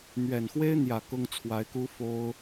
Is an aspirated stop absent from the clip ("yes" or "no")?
no